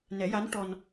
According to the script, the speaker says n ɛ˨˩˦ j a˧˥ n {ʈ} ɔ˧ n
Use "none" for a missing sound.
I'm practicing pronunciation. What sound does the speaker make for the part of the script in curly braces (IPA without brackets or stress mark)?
ʈ